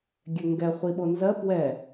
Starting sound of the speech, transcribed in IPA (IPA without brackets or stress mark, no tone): ɡʲ